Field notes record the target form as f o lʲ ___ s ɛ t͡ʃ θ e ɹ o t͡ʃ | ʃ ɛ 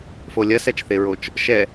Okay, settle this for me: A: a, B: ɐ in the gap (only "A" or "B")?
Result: B